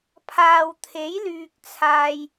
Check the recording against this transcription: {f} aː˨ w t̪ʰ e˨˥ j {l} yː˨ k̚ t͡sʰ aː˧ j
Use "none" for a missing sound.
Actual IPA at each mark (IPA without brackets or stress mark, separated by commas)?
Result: pʰ, l